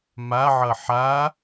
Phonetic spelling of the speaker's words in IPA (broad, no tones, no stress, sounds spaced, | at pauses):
m a ʕ ʌ ħ a